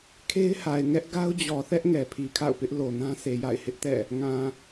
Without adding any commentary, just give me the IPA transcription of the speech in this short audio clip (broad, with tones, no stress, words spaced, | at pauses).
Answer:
kʰe˦ɪ̯ha˨ɪ̯ ŋɛ˦ʔ ɡa˦ʊ̯d͡ʑɔ˨θɛ˦ʔ ŋɛ˨pʰi˨kʰa̰˦˨ʊ̯pɪ˦ʔ lo˨nã˦ se˨ja̰˦˨ɪ̯hɪ˦ʔtɛ̰˦˨ | ŋã˨